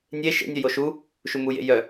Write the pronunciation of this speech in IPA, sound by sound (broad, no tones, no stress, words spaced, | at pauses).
nʲe ʃḛnʲœ joʃu | ʃumujḛ jœ